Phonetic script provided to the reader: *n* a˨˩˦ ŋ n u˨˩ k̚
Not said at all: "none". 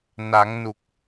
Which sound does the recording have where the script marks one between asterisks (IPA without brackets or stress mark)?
n